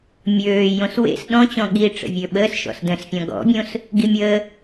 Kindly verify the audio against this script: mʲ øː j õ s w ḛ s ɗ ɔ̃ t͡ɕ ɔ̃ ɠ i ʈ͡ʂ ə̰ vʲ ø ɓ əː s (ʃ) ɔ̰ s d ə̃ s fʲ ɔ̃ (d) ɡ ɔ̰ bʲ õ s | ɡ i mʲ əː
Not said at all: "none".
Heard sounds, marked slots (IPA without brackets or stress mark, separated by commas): ʃ, none